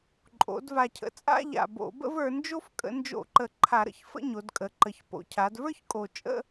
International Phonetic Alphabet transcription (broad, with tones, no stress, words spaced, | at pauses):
ǃʼo̰˩˧d va˨˩cʰə̰˩˧t͡sʼa̰˥˧ʎa̰˨˩ bo̰˧˩˧ bə̰˥˧və˞˩˧nd͡ʒo˥˧f kʼə̰˧˩˧nd͡ʒo̰˧˩˧ǃə˨˩ ǃʰa˧˩˧ɾə̰˩˧çfə̰˥˧ɲo˩˧d kʼə˩˧ǃə˨˩ç po̰˩˧cʰa˩˧dvə˞˥˧çkʼo˨˩ t͡ʃʼə̰˥˧